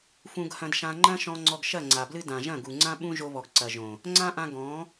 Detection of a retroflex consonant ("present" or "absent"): absent